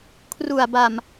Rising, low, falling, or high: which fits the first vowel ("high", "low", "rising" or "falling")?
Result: low